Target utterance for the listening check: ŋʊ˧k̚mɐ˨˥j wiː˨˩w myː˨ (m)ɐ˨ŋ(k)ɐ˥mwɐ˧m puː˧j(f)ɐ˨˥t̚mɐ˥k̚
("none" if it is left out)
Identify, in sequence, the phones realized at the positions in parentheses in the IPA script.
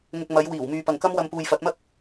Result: p, k, f

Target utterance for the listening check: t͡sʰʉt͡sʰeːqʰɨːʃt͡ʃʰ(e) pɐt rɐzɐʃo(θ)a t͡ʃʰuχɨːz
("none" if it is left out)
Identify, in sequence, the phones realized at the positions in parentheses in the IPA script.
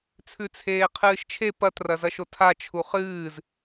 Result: e, tʰ

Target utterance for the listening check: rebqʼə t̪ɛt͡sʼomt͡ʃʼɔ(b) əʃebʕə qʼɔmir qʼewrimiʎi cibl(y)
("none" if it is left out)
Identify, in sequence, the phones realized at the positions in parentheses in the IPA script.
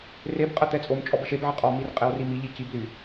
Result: b, y

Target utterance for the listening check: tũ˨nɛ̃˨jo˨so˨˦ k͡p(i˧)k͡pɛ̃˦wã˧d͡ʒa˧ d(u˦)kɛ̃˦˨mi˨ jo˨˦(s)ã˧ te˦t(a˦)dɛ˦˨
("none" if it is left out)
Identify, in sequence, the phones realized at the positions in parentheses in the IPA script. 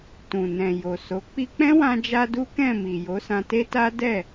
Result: i˧, u˦, s, a˦

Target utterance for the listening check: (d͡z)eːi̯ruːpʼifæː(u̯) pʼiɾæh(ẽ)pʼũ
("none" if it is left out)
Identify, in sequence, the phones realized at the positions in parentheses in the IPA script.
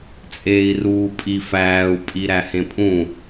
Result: t͡sʼ, u̯, ẽ

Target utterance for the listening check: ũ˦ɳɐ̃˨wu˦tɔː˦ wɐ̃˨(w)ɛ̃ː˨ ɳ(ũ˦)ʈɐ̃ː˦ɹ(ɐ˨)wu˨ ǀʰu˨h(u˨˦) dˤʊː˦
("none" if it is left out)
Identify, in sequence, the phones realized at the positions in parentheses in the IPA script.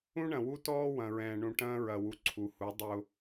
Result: ɹ, ũ˨, ɐ˨, u˨˦

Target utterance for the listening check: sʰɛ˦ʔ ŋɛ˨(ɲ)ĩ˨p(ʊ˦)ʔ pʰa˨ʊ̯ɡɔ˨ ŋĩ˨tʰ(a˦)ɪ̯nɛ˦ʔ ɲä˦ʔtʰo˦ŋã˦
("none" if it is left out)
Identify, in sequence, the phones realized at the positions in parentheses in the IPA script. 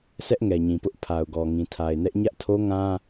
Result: ɲ, ʊ˦, a˨

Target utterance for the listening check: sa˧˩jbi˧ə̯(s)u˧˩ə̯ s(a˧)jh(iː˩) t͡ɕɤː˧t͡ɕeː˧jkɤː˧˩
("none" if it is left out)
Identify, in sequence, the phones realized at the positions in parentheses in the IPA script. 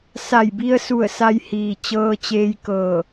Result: s, a˧, iː˩

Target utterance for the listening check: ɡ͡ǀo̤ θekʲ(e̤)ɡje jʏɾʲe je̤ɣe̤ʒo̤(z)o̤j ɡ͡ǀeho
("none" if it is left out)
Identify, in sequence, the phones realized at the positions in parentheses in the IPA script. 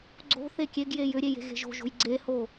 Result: e, ʒ

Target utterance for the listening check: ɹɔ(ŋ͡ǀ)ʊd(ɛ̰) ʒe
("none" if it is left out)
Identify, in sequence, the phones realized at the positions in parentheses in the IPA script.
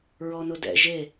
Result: n, ɛ̰

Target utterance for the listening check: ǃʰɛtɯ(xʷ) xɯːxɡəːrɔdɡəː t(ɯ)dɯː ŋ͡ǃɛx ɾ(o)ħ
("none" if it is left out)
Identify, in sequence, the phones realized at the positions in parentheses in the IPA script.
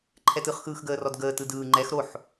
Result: χ, ɯ, o

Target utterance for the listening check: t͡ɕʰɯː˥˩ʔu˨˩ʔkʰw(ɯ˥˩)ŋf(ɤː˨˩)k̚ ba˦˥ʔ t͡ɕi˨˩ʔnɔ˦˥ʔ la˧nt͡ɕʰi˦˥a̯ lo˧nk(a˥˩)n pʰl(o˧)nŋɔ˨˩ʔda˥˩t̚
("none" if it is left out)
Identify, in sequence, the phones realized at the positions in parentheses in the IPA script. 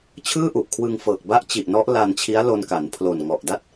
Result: ɯ˧, ɤː˨˩, a˩˦, o˨˩

